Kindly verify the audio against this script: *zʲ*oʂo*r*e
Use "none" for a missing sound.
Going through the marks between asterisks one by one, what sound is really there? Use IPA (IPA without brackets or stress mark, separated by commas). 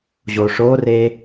ʑ, r